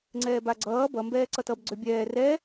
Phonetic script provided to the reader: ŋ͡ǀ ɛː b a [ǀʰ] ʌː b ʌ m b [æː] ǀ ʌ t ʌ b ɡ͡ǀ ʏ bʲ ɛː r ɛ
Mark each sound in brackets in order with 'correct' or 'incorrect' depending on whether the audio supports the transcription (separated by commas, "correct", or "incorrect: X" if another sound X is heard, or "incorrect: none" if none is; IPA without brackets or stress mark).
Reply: incorrect: ɡ͡ǀ, incorrect: ɛː